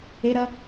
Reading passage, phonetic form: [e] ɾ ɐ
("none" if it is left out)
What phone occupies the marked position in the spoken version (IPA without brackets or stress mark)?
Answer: e